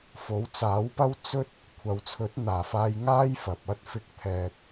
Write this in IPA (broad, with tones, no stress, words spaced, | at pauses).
fo˨˥wt͡saː˨˥wpɐ˥w t͡sɵ˥t̚ | kʷʰɐ˨˧wt͡sʰɵ˨˥t̚n̪aː˨˩faː˧j ŋaː˥jfɐ˨p̚ɐ˥t̚fɪ˧k̚ t̪ʰɛː˨t̚